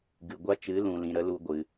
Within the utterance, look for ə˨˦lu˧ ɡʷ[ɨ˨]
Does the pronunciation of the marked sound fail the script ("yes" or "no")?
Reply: no